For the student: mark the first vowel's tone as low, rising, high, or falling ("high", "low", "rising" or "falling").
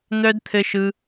high